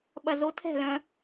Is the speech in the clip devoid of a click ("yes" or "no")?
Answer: yes